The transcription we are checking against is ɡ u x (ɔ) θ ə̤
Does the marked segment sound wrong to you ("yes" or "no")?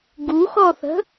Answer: no